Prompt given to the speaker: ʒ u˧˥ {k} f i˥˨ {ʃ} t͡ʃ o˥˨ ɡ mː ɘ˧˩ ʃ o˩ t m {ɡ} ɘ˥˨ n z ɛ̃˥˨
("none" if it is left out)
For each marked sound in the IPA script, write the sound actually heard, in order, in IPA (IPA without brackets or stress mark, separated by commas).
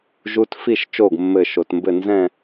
t, ʃ, b